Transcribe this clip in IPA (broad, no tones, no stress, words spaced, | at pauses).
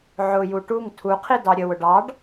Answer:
ʕʊju ʈuŋ tʰuqʰi dɑɾʲəwʊ ɖɑɖ